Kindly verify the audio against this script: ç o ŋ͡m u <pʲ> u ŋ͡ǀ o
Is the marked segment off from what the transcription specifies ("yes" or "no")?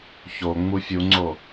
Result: yes